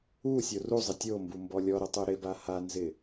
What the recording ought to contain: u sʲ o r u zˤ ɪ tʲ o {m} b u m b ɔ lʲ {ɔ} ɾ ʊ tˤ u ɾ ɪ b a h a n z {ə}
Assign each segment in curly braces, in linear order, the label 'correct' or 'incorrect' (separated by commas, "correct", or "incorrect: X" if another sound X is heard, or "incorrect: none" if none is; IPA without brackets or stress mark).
correct, correct, incorrect: ɪ